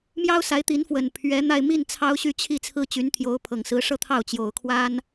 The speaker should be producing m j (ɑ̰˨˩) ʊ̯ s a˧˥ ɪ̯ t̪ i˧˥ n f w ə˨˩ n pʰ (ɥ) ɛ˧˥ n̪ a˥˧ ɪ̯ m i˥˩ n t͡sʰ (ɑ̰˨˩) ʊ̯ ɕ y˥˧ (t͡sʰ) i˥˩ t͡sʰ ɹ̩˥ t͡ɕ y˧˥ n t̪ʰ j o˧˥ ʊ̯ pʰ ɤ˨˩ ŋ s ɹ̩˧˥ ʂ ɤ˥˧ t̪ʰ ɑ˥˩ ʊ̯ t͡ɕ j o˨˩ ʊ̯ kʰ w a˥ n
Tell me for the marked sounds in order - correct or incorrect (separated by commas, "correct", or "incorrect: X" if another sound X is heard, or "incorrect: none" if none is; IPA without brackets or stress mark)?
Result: incorrect: ɑ˥, correct, incorrect: ɑ˥, incorrect: t͡ɕʰ